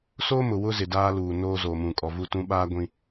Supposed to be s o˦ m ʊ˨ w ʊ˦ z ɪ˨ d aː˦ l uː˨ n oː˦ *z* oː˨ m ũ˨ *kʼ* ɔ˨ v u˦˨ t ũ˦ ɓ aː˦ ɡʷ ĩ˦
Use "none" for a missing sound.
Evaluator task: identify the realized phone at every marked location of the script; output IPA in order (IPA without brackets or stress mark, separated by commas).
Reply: z, kʼ